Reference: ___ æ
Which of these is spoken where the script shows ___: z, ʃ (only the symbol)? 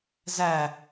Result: z